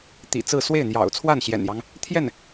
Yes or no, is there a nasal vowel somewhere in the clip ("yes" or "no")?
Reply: no